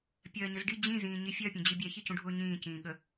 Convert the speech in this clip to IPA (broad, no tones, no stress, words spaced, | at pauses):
pʲɜːɲəzɖi d͡ʑĩ zĩːɲifʲɜ pʲũd͡ʑibʲɛ çicũɖʱʊːɲĩː cĩːɠə